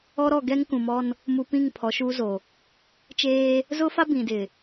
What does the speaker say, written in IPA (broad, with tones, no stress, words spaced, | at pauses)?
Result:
ɔ˦ɾɔ˦˨ ɡɛ˦ŋ kũ˨mɔ˦n | mu˨ pĩ˦˨ŋ pʰɔ˨˦ʃu˦ zo˨ | t͡ʃeː˦ | zʊ˦fa˦ bĩ˨dɪ˨